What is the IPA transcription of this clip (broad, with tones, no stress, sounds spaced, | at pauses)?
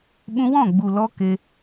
ɓ ũ˧ w ɔ̃˦˨ ɡ͡b u˨ l ɔ˧ k e˧